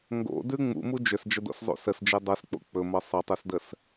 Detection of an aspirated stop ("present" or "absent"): absent